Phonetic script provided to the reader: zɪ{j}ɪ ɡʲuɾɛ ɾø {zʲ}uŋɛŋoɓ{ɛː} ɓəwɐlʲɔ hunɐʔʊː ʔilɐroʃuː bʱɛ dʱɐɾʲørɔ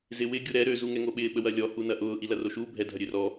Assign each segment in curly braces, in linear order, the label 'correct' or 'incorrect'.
incorrect, incorrect, incorrect

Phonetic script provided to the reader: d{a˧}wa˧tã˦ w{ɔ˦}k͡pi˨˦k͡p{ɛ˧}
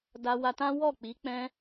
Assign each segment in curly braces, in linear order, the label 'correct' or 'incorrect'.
correct, incorrect, incorrect

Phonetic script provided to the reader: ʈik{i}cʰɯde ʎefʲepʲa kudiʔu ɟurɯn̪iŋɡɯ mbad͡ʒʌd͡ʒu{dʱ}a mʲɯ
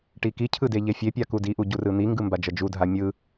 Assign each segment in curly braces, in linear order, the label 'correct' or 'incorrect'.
correct, correct

